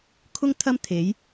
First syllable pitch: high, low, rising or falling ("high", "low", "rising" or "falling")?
high